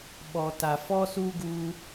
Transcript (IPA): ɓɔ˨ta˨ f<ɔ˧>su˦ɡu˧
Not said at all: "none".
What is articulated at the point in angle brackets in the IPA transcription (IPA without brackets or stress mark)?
ɔ˦